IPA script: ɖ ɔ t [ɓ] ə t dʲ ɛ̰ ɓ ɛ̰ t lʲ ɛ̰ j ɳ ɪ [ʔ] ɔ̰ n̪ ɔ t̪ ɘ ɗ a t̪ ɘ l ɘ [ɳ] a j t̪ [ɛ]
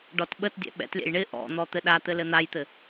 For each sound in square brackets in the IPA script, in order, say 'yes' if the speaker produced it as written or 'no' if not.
yes, yes, no, no

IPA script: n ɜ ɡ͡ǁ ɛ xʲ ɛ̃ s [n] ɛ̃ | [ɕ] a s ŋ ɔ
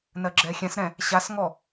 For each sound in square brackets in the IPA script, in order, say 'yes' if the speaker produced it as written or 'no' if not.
no, yes

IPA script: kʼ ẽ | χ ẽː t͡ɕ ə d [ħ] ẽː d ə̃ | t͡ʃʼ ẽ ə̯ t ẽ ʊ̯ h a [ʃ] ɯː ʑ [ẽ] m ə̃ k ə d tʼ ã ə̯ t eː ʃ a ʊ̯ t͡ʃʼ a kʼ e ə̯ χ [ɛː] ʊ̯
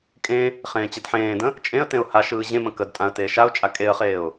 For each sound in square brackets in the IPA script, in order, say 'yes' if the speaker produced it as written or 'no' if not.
yes, yes, yes, no

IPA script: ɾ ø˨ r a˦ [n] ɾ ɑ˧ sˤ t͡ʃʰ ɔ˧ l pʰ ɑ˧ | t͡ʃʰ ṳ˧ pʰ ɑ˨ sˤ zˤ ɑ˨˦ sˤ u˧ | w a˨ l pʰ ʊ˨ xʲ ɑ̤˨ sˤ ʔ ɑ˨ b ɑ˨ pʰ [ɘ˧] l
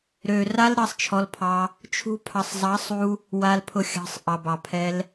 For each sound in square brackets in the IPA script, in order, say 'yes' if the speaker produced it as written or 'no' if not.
no, no

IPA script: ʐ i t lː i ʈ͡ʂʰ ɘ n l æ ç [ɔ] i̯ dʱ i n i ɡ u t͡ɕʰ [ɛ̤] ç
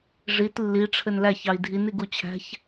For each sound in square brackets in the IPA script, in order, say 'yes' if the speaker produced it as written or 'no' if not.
no, no

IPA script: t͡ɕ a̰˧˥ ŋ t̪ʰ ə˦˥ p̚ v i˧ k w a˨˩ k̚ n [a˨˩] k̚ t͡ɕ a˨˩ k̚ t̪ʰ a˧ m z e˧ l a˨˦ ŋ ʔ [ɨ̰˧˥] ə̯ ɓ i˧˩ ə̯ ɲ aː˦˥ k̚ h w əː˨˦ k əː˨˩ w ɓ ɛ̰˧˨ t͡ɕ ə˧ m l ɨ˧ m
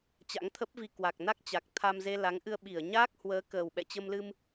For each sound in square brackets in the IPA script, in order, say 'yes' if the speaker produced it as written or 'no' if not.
no, no

